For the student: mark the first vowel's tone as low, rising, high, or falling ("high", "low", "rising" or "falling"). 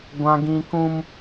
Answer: high